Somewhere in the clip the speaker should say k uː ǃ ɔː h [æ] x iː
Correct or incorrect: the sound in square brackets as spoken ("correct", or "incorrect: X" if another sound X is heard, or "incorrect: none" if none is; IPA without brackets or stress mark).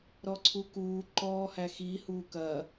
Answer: correct